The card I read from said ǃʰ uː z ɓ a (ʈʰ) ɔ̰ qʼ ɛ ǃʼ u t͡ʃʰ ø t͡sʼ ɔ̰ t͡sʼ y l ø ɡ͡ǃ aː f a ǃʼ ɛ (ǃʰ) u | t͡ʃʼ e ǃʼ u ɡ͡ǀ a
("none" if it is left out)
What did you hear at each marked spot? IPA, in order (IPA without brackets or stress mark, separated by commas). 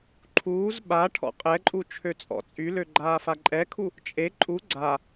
ʈʰ, kʰ